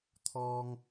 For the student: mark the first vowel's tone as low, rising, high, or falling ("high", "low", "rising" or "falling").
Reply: high